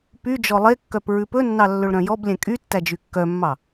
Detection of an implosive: absent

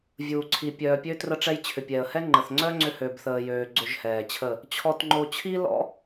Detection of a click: present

